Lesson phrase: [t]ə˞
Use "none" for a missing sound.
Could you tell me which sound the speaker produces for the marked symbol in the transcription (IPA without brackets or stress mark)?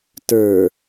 t